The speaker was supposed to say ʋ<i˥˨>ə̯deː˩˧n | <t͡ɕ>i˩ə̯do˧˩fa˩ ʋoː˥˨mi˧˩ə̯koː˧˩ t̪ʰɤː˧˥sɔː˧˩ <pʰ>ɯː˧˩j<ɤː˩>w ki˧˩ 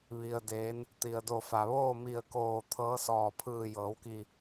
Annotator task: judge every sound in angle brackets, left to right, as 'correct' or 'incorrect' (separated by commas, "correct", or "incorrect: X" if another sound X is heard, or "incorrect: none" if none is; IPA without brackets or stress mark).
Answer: incorrect: i˩, incorrect: t̪, correct, incorrect: ɤː˩˧